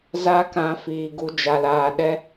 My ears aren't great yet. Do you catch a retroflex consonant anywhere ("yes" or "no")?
no